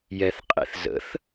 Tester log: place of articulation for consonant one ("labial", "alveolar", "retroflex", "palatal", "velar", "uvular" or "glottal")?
palatal